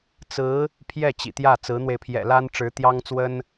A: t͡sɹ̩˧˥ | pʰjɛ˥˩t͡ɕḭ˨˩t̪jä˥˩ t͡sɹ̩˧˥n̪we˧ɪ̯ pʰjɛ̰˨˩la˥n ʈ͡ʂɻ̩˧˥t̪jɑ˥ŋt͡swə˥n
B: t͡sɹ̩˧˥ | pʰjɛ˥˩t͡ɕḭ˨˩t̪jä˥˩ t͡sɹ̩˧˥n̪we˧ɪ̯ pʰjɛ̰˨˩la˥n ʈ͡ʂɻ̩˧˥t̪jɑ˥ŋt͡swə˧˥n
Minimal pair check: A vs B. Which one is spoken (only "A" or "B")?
A